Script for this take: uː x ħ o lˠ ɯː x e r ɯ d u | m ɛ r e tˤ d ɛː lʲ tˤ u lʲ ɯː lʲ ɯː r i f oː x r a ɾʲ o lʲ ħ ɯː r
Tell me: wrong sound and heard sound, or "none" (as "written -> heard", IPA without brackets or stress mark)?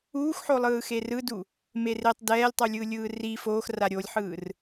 ɛ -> e